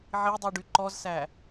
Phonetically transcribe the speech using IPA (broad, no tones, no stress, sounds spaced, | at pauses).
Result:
ʕ i dˤ y ɖ y ǃ ɔ z s æ